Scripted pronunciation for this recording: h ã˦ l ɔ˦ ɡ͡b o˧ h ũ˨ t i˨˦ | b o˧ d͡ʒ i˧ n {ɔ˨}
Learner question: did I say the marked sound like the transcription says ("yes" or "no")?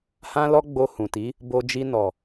yes